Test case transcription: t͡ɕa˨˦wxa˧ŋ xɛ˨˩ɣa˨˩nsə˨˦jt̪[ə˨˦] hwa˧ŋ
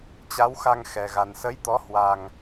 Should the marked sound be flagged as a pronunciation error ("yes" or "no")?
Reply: yes